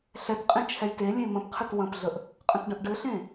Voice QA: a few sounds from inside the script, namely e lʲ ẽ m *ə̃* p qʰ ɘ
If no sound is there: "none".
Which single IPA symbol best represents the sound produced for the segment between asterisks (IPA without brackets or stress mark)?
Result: ə̃